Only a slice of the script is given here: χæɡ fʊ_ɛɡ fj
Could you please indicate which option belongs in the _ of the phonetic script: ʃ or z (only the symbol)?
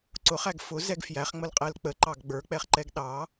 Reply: z